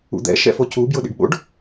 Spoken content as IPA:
ṵ d̪ ɛ̰ ʃ ɛ̰ f o c u b j ʊ ɗ ḭ ɖ ɓ o̰ ɖ

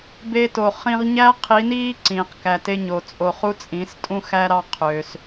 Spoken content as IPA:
b e˧ t o˨ χ ĩ˧ ʁ ɲ æː˦ qʰ i˨˦ n iː˦ ǀ ĩː˨ q k æ˧ t e˦ ɲ o˧ t͡sʼ o˧ χ u˦ t͡sʼ ĩ˨˦ s tʼ ũ˦ x æ˦ ɾ ɑ˦ qʰ ø˧ s

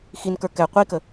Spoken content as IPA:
x i n k ə˞ k ɛ qʷ i k ə

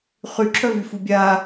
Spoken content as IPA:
χ y ǁʰ œ v y f u bʲ a

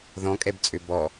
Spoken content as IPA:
ð ɔ̃ kʼ ɛ b t͡sʼ ø b ɔ

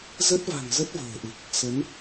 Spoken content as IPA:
z ə˦˥ t̚ v a̤˨˩ ŋ z ə˦˥ t̚ v ə̤ː˨˩ ʔ ɨ˨˩ k̚ | s ə˨˦ n

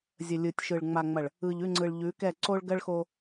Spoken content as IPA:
zʲ ə˨ lʲ ɯ˨ tʲ ʃ ɯ˨ ɭ ŋ͡m a˨ ŋ͡m ɐ˨ ɭ | ɯ˨ ʎ ʉ˦˨ ŋ͡ǀ ɯ˨ ɭ ʎ ʉ˨˦ k ɛ˦˨ ǀ o˦ ɭ ɡ ɜ˦ ɭ x o˦

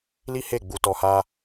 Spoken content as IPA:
l i˦ h e˦˨ ɡ͡b u˧ t ɔ˧ h a˦

